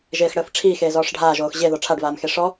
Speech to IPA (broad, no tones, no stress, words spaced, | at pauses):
ʒeːxɽəːfʈ͡ʂʰiː xeːzɔːʂɖʱaːʒoːx ʑe ðɔʈ͡ʂʰaɖvaːmxe ʂɔ